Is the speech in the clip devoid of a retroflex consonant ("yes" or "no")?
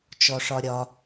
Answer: no